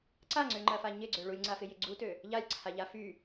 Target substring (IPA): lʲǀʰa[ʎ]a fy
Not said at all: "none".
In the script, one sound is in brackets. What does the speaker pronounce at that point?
ʎ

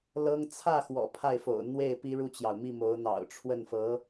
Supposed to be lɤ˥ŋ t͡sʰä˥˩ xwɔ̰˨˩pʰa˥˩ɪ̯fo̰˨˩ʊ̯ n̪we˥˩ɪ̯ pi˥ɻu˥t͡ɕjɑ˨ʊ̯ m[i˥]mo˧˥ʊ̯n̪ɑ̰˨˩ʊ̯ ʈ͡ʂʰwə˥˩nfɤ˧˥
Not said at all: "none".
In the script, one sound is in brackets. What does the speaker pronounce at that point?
i˥˩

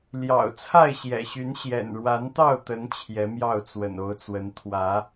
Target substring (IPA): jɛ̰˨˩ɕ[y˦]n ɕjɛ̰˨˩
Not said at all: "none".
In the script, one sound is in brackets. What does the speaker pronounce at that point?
y˨˦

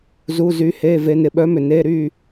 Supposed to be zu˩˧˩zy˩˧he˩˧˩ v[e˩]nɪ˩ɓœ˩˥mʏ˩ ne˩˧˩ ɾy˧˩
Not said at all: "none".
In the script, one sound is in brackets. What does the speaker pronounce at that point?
e˩˧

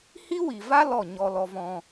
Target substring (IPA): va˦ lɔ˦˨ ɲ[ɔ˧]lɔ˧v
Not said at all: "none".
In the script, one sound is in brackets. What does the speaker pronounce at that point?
ɔ˧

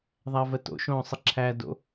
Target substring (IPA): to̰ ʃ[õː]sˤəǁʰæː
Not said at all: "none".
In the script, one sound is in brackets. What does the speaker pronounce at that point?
õː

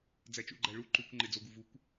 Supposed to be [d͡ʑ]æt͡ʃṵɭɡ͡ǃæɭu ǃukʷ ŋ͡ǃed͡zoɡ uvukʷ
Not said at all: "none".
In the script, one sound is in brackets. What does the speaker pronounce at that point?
d͡z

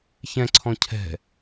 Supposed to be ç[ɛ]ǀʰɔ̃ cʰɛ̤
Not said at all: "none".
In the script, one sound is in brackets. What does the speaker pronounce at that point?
ɛ̃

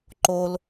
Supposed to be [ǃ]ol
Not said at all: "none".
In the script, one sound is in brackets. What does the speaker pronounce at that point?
ǃ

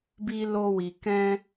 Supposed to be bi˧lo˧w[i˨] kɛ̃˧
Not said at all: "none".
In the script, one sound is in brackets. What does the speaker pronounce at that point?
i˨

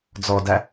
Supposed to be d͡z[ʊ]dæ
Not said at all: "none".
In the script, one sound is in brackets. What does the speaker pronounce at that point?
ɔ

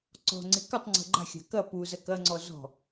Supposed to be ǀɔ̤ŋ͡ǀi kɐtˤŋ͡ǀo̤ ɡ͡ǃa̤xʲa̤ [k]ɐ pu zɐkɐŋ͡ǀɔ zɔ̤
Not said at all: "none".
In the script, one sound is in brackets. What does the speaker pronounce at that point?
k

